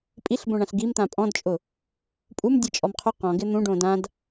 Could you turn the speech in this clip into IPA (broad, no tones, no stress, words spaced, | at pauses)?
pʼiɬbõɳãɬ ɡimt̪ã pʼɔ̃dt͡ʃʼʊ | pʼum dʲet͡ʃʼɔmqʰʊ qɔ̃ɡɪ n̪ũɖõ dãd